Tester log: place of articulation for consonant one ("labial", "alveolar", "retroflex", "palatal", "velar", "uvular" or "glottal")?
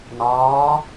alveolar